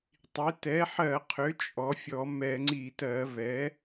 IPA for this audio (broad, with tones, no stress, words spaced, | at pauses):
tˤi˩˥ tɛ˩˥ħɜ˧˩˧qʰʏ˩˥ t͡ʃʼɔ˩˥fʲɔ˧˩˧ mɛ˧˩˧ŋ͡ǀi˧˩˧tɜ˧˩˧ vɛ˩˥